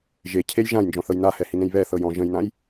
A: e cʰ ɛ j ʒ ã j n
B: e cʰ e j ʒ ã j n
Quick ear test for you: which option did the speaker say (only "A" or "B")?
B